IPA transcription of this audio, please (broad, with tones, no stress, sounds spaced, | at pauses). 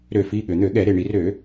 ɾ ø˧˩˧ f i˩˧˩ ɠ ø˩ n̪ ø˧˩˧ ɠ ɛ˧˩˧ ɾ e˩˧˩ ɳ i˧˩˧ r ø˧˩˧